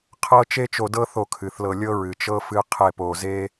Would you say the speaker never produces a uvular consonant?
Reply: no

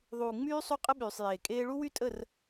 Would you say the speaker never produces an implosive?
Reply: no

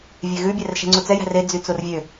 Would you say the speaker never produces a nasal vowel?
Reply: yes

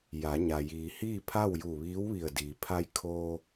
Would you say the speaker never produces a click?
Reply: yes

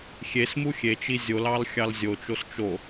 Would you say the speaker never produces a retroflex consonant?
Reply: yes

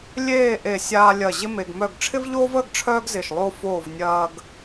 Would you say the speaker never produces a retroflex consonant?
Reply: no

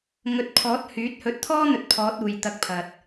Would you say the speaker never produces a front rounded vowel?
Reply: no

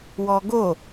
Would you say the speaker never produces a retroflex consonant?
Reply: yes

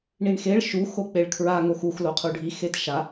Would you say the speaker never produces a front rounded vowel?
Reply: yes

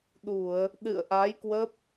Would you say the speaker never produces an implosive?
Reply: no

